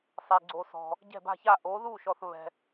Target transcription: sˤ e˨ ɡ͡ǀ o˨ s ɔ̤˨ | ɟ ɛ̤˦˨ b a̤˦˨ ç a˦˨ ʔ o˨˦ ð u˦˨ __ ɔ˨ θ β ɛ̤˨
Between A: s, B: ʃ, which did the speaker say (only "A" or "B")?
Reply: B